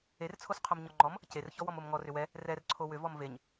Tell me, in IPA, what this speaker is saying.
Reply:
e r t͡sʰ o s qʰ o m ɲ ɔ ŋ͡ǃ ɔ m | c e r ç ɔ w ɔ m o m ŋ ɔ r ʏ w ɛ | r ɛ r ǀʰ o w ʏ v ɔ m v e ɲ

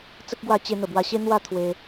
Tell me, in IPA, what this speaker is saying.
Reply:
t͡s ə˦ k̚ ɡ w a˧ t͡ɕ e˧ n̪ ə˨˩ b w a˧ ɕ e˦ n̪ w a˥˧ t̪ʰ w e˧

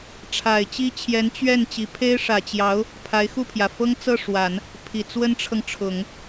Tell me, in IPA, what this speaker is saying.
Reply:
ʈ͡ʂʰ a˨˩ ɪ̯ t͡ɕ i˥ t͡ɕʰ j ɛ˧˥ n t͡ɕ ɥ ɛ˥˩ n t͡ɕ i˧˥ pʰ e˥ ɪ̯ ʂ ä˨˩ t͡ɕ j ɑ˧˥ ʊ̯ | pʰ a˧˥ ɪ̯ x u˥˩ pʰ j ä˩ f ɤ˥ ŋ t͡s ɤ˥˩ ʂ w a˨˩˦ n | pʰ i˨˩ t͡s w ə˥ n ʈ͡ʂʰ ɤ˨ ŋ ʈ͡ʂʰ ʊ˨˩˦ ŋ

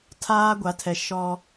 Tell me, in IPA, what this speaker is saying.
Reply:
tʰ aː˦ ɡʷ a˨˦ tʰ ɛ˨ ʃ ɔ˦

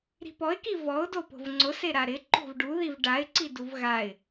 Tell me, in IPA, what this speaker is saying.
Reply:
ɾ i̤ p ɔ ɪ̯ k i v ɔ ʊ̯ d o p o̤ v ŋ͡ǀ ʊ s e ɾ a ɾ ɪ ǃ o̤ v ɖ u ð i v ɖ a ɪ̯ ǀ i d u v ɣ a ɪ̯

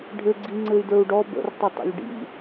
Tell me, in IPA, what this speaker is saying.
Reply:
ɖʱ ɘ ɡ͡ǀ i ŋ͡ǀ ɘ y̯ d ə˞ u̯ ɖ ɔ b ə̰ r tˤ ə tˤ ə̰ lʲ ɖ ḭ

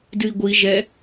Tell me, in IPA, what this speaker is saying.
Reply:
d ɨ i̯ ɡʷ i ʒ ɛ

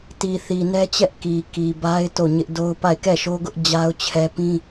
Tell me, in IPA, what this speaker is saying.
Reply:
t i˨ θ i˨ n ɛ˦ t͡ɕ ɛ˦ ʔ k i˨ k i˨ b a˦ ɪ̯ t o˦˨ ɲ ɪ˦ ʔ d o˦ ʊ̯ p a˦˨ ɪ̯ k ɛ˦˨ ʃ o˦ ɡ ʊ˦ ʔ d͡ʑ a˦ ʊ̯ t͡ɕʰ ɛ˦ p ĩ˦

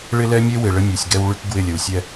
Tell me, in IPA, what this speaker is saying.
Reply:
ɭ ɪ˦ l ɛ˦ mʲ e˦ w ɪ˨ ɭ ə˦ mʲ u˨ sʲ ɡ ɛ˦ w ɭ y˦ k ɡ w ɪ˦˨ lʲ ə˨ w sʲ ɛ˦

